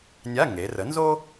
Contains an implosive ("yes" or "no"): no